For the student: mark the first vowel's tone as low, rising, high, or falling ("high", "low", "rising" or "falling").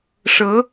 rising